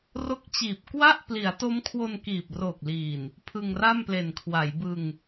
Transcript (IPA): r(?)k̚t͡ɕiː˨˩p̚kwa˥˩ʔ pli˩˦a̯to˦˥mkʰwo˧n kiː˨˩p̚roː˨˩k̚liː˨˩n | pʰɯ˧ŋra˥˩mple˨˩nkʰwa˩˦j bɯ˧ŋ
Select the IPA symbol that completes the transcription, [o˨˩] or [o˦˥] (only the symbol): o˦˥